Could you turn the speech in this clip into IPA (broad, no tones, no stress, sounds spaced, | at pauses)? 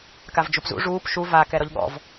k a v d͡ʒ u p z ṵ ʐ uː p ʃ u v a k ɛ ɾ ɔ ʎ ɠ ɔ̰ v